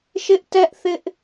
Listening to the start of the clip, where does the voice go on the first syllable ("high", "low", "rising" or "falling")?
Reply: high